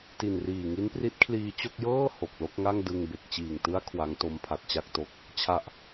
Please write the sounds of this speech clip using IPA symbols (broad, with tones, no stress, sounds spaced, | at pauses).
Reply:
t i˨˩ n r iː˨˩ ŋ i˦˥ n p r i˦˥ t̚ kʰ l iː˧ t͡ɕ o˥˩ k̚ j ɤː˥˩ h o˨˩ k̚ l o˥˩ k̚ ŋ a˥˩ ŋ d ɯ˧ ŋ b e˨˩ k̚ t͡ɕ iː˨˩ ŋ t ɯ˦˥ a̯ kʰ w a˦˥ ŋ t o˦˥ m pʰ a˨˩ t̚ t͡ɕ a˥˩ k̚ t o˦˥ k̚ | t͡ɕʰ a˨˩ ʔ